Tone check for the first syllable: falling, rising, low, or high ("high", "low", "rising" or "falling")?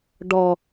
low